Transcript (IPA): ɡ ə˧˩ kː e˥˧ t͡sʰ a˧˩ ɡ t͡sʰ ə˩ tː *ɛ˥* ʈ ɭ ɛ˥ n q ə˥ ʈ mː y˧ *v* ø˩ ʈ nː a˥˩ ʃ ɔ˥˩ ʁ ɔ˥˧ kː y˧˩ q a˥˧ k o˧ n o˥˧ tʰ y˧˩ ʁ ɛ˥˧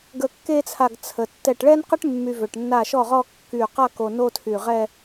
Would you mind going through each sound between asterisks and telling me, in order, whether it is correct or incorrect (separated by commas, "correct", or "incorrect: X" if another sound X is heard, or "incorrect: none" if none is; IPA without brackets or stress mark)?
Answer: incorrect: ɛ˧˩, correct